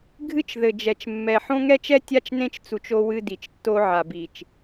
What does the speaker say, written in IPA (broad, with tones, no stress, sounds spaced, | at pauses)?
ɡʱ ɨ˦ t͡ʃ ð ɘ˨ d͡ʒ ɛ˨ t͡ʃ mː ɛ˨ ħ õ˦ ŋ ɛ˦ t͡ʃ ɛ˦ tʲ a˦ t͡ʃ n ẽ˦ t͡ʃ t͡s u˨ t͡ʃ o˦ w ɨ˦ d i˨ t͡ʃ tː o˦ ʕ a˨ b i˨ t͡ʃ